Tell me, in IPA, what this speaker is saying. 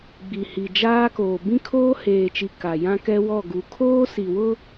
ɡ͡bi˨hi˨d͡ʒaː˦koː˨ bĩ˦kʰoː˦heː˨t͡ʃi˨ ka˨ jã˦kɛ˦wɔ˦˨ ɡu˨˦ kʰoː˦si˨wʊ˦

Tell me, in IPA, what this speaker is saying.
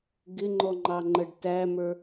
ɡɪŋ͡ǃɔŋ͡ǃɑŋ͡ǃəɖ tæmə˞

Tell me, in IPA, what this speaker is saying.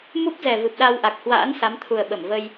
mu˦˥p̚ zɛ˨˩vɨ˨˩p̚ɗa˧wʔa˨˩k̚ hwa̰ː˧˥n sa˨˦mt̪ʰu˨˩ə̯ ɓə˧˩mvə˧j

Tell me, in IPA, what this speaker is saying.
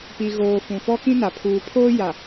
pi˨ɣoː˨ fũ˨fɔ˦kĩ˦na˨ pʰuː˨pʰoː˦ ja˨

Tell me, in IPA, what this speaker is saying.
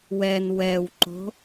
wɛn wɛwǃo̤

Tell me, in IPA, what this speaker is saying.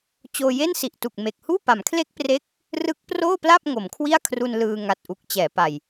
t͡ɕoː˧je˥˩nsi˨˩ʔtu˨˩k̚ me˨˩k̚ huː˥˩pa˩˦mkʰle˥˩k̚pre˦˥k̚ | rɯ˦˥k̚proː˥˩pla˥˩p̚ ŋo˩˦mkʰwi˥˩a̯kʰru˧n lɯː˧ŋa˨˩t̚ʔu˨˩k̚ t͡ɕɛː˩˦pa˨˩j

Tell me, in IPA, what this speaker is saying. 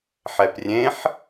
ħɛprʲẽħ

